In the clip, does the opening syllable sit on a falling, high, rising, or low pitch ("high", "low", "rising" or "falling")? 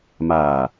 low